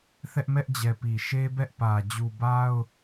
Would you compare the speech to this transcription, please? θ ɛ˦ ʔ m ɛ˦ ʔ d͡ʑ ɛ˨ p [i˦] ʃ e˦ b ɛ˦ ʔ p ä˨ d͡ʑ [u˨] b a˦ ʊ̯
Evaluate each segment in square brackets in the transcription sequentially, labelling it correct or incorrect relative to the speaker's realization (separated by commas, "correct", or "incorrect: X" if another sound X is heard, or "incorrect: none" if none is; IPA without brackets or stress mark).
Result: incorrect: i˨, correct